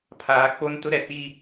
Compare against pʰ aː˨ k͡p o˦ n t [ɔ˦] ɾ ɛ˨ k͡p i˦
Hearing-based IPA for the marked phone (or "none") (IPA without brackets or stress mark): ʊ˦